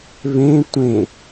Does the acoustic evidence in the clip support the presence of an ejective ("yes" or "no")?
no